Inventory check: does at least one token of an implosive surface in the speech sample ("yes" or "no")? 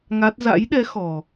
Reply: yes